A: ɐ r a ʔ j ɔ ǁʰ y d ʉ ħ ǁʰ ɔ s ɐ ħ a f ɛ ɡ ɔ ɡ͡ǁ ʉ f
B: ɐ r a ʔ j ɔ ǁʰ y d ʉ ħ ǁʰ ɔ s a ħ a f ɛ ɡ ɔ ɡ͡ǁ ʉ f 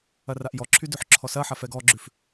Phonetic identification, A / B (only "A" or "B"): A